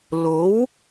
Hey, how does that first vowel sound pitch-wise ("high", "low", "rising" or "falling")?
rising